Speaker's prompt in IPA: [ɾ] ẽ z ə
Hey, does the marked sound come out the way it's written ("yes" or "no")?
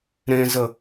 yes